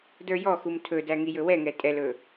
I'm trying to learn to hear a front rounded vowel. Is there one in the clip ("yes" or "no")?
no